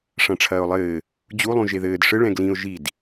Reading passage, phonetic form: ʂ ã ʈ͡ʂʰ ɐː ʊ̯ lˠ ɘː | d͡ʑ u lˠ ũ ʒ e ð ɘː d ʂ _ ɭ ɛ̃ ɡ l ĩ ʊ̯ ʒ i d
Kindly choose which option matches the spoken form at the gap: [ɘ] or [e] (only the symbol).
ɘ